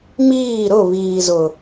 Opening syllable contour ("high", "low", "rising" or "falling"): falling